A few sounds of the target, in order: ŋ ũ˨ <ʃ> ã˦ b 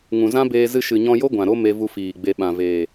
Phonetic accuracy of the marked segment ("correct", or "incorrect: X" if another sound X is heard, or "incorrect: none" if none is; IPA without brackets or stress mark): incorrect: z